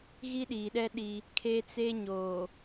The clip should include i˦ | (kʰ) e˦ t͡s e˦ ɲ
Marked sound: correct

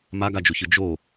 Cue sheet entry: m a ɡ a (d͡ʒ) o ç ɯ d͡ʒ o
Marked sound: correct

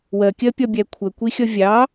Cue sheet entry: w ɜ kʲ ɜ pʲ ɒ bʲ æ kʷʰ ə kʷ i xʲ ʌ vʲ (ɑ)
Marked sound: correct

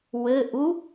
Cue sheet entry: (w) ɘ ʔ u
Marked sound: correct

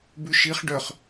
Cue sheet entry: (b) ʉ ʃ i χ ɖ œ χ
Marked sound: correct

